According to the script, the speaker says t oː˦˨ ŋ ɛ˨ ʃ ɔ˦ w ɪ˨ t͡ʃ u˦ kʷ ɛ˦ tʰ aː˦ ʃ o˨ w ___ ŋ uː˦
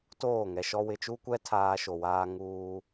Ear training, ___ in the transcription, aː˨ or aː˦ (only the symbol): aː˦